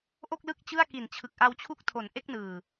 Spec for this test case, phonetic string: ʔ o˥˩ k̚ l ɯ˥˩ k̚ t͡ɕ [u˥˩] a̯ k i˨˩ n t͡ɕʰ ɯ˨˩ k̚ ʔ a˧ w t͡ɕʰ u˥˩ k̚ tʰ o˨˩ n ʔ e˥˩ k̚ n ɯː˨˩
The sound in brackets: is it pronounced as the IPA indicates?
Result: no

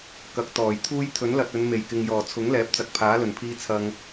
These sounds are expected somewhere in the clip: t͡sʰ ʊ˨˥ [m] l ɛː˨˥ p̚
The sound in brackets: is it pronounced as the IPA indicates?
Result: no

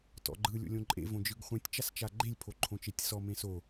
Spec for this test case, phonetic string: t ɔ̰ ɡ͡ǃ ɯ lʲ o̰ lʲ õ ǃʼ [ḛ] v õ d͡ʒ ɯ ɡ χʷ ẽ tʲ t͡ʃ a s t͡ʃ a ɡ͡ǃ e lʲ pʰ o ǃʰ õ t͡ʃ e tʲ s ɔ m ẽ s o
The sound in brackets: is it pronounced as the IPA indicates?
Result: yes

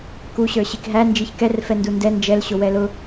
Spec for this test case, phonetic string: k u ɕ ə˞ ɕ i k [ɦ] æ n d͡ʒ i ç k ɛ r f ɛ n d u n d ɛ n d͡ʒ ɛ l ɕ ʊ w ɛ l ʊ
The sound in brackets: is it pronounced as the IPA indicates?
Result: yes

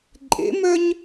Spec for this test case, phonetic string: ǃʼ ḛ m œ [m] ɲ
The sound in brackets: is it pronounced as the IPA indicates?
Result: no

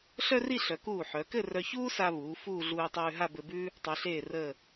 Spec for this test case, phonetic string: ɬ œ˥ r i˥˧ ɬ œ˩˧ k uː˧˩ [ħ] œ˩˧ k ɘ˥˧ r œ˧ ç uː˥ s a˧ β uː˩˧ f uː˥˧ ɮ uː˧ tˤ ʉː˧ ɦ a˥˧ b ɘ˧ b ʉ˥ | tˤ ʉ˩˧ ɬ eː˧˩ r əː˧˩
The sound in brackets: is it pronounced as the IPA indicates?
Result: yes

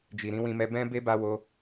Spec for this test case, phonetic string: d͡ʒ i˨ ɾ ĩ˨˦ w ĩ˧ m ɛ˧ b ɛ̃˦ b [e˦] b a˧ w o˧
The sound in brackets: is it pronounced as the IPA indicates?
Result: yes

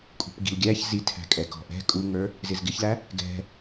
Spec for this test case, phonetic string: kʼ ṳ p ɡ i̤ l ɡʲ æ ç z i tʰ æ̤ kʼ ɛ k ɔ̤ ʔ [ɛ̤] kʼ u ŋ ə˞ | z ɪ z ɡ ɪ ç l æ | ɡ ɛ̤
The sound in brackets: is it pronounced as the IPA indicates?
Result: yes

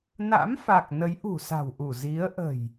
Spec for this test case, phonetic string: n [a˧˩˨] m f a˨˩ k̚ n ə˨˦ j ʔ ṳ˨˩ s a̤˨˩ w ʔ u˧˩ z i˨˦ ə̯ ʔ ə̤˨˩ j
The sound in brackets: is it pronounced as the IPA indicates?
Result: no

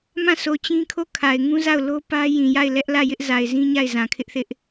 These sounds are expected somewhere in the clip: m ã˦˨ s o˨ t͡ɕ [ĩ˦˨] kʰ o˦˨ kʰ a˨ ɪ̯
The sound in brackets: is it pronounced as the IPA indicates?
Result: no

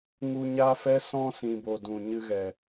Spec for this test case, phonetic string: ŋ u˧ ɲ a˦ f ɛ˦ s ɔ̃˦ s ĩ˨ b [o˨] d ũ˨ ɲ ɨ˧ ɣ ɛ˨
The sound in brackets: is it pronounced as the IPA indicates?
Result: yes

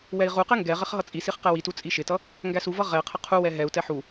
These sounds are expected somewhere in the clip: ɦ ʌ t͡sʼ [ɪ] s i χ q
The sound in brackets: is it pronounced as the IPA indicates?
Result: no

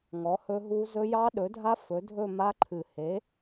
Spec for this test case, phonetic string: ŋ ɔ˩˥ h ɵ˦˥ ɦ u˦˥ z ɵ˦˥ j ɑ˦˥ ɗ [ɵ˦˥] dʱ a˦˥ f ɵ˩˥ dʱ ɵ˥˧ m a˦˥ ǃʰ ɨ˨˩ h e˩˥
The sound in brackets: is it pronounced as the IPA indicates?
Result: no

